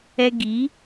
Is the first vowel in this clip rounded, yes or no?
no